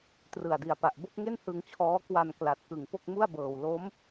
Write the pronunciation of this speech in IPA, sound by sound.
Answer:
t r ɯ˨˩ a̯ d i˨˩ a̯ p a˨˩ ʔ b o˥˩ k̚ ŋ e˥˩ n h ɯ˧ ŋ t͡ɕʰ ɔː˦˥ k w a˨˩ n k l a˨˩ t̚ k ɯ˨˩ ŋ p o˥˩ k̚ m u˥˩ a̯ b ɤː˨˩ w l o˦˥ m

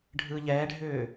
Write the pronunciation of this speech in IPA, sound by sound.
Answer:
ɖʱ ɯː ʎ ɛː ɖʱ ʏː

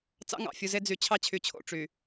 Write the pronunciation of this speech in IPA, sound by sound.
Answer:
t͡s ɑ̰˦ ŋ ɑ̰˨ fʲ u˨ z e˦ d͡z y˨ t͡ɕʰ ɑ˦ t͡ɕʰ y˨ t͡ɕʰ o̰˨ ʈ͡ʂ y˨

